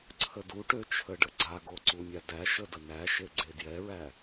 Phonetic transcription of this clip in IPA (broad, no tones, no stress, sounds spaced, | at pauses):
ǀʰ ə d u ʈ ø t͡ʃʰ ə ɖ ə ɡ͡ǀ a ɡ o ǀ u mʲ a d æ ʃ ə d ə n̪ æ ʃ e ɡ͡ǀ e d j ɛ ɹ æ